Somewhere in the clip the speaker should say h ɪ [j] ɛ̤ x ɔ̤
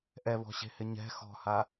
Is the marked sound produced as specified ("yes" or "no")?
no